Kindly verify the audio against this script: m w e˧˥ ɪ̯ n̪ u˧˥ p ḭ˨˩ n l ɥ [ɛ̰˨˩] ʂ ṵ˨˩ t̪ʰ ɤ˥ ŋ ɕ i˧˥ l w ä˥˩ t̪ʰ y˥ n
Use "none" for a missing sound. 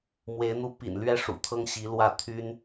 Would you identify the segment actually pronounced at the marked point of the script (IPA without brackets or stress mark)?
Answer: ɛ˥